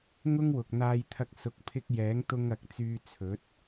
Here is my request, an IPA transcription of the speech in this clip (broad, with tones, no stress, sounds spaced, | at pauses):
ŋ ʊ˥ ŋ w ʊ˨ k̚ n̪ aː˧ j t̪ʰ ɐ˧ k̚ s ʊ˨ k̚ pʰ ɪ˧ k̚ j ɛː˨˥ ŋ t̪ ʊ˧ ŋ ɐ˨˥ k̚ t͡s yː˧ t͡sʰ ɵ˨˥ t̚